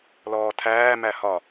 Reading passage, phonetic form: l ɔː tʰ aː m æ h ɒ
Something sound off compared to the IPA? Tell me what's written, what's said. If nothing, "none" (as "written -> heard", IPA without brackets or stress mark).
aː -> æː